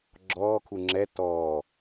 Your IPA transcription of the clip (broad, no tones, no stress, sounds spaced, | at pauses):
ɡ͡ǁ ɔː kʰ u ŋ͡ǁ ɛ t ɔː